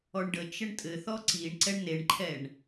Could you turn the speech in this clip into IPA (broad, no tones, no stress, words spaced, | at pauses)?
ɔɳɖət͡ʃ əɳtʼɘ θɔǀiɳǀɛɳ neɳǃʰɛɳ